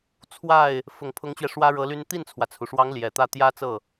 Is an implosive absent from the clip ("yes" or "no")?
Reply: yes